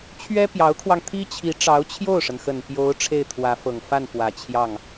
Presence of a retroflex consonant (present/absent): present